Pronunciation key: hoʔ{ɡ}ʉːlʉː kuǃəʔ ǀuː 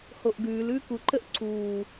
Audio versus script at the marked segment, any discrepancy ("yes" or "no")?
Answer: no